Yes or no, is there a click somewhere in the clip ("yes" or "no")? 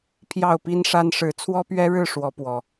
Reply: no